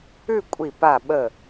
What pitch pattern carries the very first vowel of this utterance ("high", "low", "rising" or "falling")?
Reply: falling